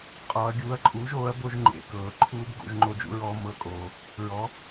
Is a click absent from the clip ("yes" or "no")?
no